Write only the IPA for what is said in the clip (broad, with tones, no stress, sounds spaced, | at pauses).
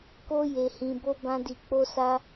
k o˦ j e˧ h ĩ˧ b o˦ b ã˦ d i˧ k͡p o˦ s a˦